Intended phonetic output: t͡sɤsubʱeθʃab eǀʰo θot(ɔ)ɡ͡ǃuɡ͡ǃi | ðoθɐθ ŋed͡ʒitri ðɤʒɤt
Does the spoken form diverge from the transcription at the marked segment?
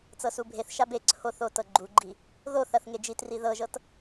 yes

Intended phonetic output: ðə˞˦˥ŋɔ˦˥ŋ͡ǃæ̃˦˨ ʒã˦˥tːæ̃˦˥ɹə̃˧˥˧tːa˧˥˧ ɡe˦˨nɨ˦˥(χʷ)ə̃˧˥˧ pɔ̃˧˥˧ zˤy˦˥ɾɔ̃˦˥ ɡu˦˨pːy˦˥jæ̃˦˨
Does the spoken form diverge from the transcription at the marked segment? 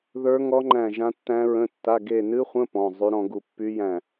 no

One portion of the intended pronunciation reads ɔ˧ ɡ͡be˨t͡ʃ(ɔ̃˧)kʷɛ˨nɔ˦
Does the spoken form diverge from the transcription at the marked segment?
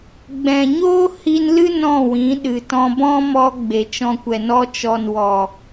no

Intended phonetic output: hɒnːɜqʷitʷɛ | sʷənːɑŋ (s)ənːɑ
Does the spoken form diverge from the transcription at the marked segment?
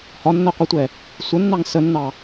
no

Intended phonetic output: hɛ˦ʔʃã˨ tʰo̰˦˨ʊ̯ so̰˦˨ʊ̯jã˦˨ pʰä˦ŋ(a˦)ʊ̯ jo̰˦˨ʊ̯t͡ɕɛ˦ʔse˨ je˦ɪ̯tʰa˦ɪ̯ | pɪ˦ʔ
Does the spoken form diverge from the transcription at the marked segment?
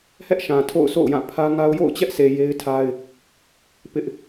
no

